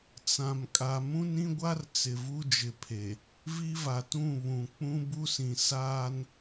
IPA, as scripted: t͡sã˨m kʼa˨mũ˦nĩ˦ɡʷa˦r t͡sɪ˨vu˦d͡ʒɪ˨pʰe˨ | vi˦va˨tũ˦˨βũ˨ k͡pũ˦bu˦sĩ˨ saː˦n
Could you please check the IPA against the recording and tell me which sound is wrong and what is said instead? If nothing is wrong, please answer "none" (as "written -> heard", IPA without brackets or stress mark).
none